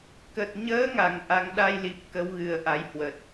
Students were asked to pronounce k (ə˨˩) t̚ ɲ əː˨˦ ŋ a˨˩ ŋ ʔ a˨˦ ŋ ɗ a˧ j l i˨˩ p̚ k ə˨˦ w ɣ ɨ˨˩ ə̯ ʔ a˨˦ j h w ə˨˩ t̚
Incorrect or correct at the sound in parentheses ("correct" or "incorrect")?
correct